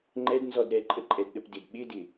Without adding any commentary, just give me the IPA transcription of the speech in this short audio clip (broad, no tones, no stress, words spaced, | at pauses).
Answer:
ŋ͡ǃɛdnzɔd ɾɛǃʼəǃʼɛdɗəp dɪd ɓɪdɪ